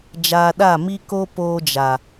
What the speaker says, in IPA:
d͡ʒ aː˧ ɗ a˦˨ m i˧ k o˧ p oː˧ d͡ʒ a˨

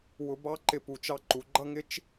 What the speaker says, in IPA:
w ʊ˧ b ɑ˦ ǃ ɪ˧ p u˨ t͡ʃ ɑ˧ ǃ u˨ ɡ͡ǃ ʌ˦ ŋ ɪ˦ t͡ʃ

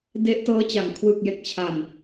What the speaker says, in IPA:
d e˦˥ ʔ t ɤː˦˥ t͡ɕ a˨˩ ŋ kʰ w ɯ˨˩ k̚ j e˨˩ k̚ t͡ɕʰ a˨˩ n

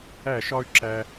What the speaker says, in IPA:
æ˧˩ ʃ ɒ˧ y̯ ǁ æ˧

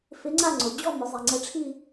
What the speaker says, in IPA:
f ɪ˧˥ ŋ͡ǀ a˥˧ ŋ͡ǀ ʊ˩˧ d͡ʑ ɔ˥˧ m ʊ˩˧ zˤ i˩ ŋ͡ǀ ɛ˧˥ ʈ͡ʂʰ i˥˧

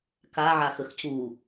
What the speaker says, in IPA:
k a ʕ a x ə x c u

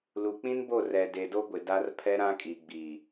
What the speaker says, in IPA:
l u˨ k͡p ĩ˦ n b o˦˨ r ɛ˨ d e˨ d o˦ ɡʷ ɪ˨ d a˦ r pʰ ɛ˦ ɾ ã˦ kʼ i˨ ɡ͡b i˨

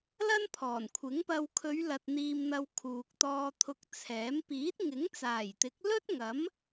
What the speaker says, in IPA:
l ɐ˥ n pʰ ɔː˨˩ n kʷʰ ɪ˨˥ ŋ p ɐ˧ w kʰ ɵ˨˧ ɥ l ɐ˨ t̚ n̪ iː˨ m n̪ ɐ˨ w kʰ uː˨ k̚ t̪ ɔː˧ t̪ʰ ʊ˧ k̚ t͡sʰ ɛː˨˥ m p iː˨˥ t̚ ŋ ɪ˨˥ ŋ t͡s aː˨˩ j t̪ ɪ˨˥ k̚ l ɵ˥ t̚ ŋ ɐ˨˥ m

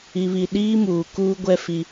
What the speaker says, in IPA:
i˨ β i˨ ɗ iː˦ m uː˨ k uː˦ ɡʷ ɛ˦ f i˦

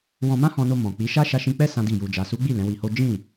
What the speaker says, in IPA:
w ɔ̃˧ m ã˦ h ɔ̃˧ n o˧ m ɔ̃˨ k͡p i˨˦ ʃ a˦ ʃ a˧ ʃ ĩ˧ k͡p ɛ˦ s ã˦ d i˦˨ j u˧ d͡ʒ a˨ s u˨˦ ɡ͡b i˦˨ l ɛ̃˨˦ w i˧ h o˦ d͡ʒ ĩ˦˨

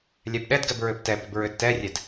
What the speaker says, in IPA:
lʲ ɛ b ɗ ɛ d ɡ ɛ b ɹ ʏ b t ɛ b ʏ b ɹ ʏ d t ɛ rʲ ɛ d

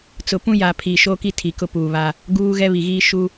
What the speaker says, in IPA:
t͡s ʊ˨ p ũ˦ j a˨ pʰ iː˨ ʃ oː˦ k i˦ tʰ i˨ k ʊ˦ p uː˨ β a˦ | ɡ uː˦ ɣ ɛ˦ β i˨ ɣ iː˦ ʃ u˦

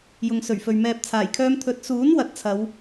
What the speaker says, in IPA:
j ʊ˨ ŋ s ɵ˨˩ ɥ f ɵ˨ ɥ m ɛː˧ p̚ t͡sʰ aː˨˩ j kʰ œː˥ m t̪ʰ ɵ˨˥ t̚ s uː˨˥ n w ɐ˨˥ t̚ t͡sʰ ɐ˨˧ w

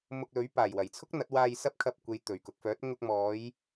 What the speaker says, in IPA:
m ʊ˧ k̚ l ɵ˨˥ ɥ p aː˨˩ j w ɐ˨˩ j t͡sʰ ʊ˥ k̚ n̪ ɐ˨˥ t̚ w aː˧ j s ɐ˥ p̚ kʰ ɐ˧ p̚ kʷ e˨ j t̪ ɵ˨˩ ɥ k ʊ˨ k̚ f œː˨˥ t̚ ŋ ʊ˧ k̚ m ɔː˨˧ j

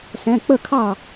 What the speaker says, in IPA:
s ɛ̃˩˧˩ k͡p ə˥˩ kʰ ɑ˥˩

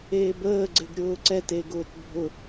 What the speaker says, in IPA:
eː b əː ɡ͡ǀ ɪ ɡ ɾʲ ʊː ǀ ɛ t e ɡ ʊː t bʱ ʊ

